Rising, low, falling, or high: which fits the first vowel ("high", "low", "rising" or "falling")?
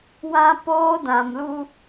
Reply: high